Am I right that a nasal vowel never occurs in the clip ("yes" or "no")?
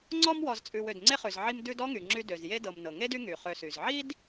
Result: yes